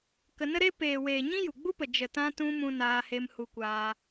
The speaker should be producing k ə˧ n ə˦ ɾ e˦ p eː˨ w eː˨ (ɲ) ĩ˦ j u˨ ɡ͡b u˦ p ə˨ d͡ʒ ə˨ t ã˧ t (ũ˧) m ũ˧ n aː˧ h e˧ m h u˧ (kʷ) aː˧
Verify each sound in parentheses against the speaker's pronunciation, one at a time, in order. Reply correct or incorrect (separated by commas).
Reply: correct, correct, correct